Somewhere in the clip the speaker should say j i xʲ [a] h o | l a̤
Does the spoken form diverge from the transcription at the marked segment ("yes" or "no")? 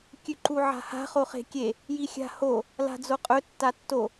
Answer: yes